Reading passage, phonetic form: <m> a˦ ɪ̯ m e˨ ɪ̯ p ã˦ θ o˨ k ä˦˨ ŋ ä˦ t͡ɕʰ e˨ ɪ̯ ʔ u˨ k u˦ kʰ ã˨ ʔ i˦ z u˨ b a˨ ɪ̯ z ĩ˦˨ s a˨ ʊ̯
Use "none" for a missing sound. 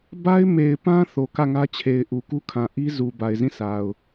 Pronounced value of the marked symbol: b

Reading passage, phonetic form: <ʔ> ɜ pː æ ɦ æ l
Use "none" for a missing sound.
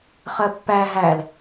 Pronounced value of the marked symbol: χ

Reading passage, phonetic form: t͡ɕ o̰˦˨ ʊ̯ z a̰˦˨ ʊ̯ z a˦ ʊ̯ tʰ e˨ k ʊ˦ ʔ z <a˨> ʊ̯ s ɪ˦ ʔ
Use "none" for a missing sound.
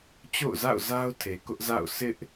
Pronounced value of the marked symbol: a̰˦˨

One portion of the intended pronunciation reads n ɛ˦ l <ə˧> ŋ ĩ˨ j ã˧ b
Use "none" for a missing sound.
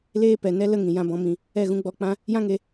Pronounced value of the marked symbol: ə˧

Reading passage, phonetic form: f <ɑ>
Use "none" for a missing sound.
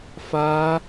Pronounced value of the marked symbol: a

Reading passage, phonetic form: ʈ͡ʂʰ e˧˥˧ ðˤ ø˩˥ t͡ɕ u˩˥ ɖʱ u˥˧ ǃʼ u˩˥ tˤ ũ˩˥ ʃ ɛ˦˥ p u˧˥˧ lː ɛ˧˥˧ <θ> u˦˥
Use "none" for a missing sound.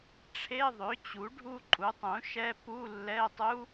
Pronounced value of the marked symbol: tˤ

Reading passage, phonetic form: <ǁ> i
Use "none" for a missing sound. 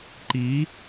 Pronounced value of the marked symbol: ǃ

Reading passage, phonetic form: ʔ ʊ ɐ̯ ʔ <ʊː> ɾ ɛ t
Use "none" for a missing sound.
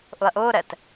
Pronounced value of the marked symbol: ʊː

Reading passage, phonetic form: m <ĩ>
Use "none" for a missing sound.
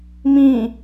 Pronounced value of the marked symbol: ĩ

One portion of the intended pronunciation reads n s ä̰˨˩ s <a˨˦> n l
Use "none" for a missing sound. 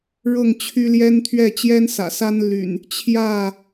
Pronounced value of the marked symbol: a˦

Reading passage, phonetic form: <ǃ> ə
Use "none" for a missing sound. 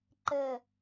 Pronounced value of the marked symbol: ǃ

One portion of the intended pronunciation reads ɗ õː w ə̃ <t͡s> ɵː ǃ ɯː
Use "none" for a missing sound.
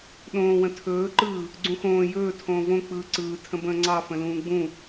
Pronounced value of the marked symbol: tʰ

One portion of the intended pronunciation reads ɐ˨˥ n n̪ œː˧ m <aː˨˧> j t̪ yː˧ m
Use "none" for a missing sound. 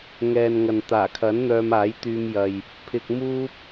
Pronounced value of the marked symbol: aː˨˥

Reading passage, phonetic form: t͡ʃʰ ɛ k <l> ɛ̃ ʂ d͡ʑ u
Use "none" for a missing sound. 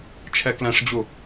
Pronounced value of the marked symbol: l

